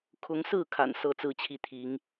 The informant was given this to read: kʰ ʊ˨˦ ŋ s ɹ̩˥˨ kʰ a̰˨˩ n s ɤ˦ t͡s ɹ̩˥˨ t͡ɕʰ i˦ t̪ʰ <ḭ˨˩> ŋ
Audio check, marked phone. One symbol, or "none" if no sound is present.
i˨˦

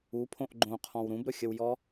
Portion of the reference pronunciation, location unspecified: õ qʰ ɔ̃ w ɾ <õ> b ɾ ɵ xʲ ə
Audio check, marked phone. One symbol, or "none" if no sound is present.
ũ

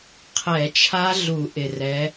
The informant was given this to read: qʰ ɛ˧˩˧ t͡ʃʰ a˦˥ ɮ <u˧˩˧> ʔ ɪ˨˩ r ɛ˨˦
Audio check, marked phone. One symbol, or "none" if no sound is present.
u˧˩˧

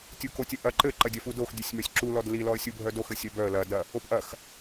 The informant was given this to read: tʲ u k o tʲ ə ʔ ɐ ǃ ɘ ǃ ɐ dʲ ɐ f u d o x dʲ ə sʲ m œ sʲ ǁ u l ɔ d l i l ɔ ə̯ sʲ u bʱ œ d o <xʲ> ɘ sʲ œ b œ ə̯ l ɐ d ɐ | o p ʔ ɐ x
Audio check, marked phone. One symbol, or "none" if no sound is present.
x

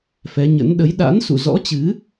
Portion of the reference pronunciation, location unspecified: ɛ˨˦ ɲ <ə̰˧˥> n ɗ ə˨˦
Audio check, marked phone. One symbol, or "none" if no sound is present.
ə̰˧˥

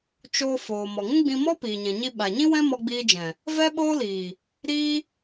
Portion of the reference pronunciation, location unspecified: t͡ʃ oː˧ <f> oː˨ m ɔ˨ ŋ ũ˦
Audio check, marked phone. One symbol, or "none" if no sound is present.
f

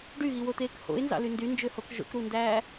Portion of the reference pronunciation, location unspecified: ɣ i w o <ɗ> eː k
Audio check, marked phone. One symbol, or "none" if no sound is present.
t̪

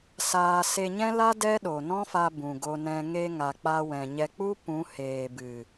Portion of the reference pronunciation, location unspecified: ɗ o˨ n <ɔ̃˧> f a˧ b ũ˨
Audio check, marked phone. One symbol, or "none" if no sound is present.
ɔ̃˦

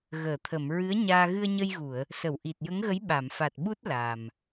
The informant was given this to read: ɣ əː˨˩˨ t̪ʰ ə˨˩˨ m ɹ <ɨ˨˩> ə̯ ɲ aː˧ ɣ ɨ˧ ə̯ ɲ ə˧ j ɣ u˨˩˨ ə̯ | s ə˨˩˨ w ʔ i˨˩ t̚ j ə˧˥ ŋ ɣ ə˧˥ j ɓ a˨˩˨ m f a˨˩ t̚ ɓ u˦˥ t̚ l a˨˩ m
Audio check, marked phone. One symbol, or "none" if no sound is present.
ɨ˧˥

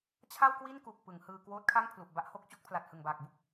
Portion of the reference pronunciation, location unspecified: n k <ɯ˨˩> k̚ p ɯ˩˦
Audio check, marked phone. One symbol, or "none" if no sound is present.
u˨˩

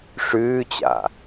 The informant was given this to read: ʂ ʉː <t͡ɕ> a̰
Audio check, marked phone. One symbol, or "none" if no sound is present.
t͡ɕ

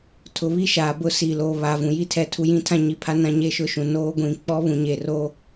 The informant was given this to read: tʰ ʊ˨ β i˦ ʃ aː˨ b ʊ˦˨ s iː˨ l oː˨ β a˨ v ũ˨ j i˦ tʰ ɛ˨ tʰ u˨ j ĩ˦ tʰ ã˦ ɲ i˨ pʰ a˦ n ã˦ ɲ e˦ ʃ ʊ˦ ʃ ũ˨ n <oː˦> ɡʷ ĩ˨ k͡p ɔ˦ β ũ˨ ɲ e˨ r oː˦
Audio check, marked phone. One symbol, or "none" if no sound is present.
oː˦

